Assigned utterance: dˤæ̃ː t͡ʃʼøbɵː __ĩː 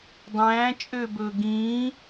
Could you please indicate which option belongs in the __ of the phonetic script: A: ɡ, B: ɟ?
A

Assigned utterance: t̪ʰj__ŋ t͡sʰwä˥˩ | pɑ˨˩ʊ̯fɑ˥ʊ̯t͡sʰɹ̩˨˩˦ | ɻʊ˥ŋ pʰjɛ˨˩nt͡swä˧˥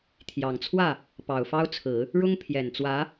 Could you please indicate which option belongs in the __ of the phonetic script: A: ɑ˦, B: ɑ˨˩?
B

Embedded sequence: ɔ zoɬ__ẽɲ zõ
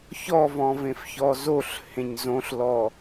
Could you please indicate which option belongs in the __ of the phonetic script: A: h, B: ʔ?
A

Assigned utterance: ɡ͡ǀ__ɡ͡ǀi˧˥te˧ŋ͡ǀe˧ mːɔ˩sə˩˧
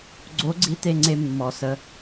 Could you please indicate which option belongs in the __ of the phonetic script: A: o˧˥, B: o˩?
A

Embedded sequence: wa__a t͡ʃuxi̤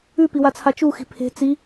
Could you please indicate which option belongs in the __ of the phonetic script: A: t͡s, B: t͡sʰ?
B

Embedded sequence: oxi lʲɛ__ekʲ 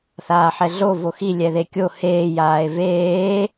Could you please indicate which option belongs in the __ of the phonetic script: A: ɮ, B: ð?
B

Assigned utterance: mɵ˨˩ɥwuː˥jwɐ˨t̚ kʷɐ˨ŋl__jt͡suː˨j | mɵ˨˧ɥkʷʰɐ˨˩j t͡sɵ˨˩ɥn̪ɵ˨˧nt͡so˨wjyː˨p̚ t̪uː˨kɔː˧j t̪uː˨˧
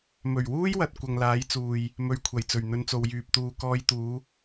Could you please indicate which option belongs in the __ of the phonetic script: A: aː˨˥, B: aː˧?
A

